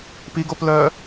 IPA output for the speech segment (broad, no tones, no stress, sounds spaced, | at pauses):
p i ɡ o p l œː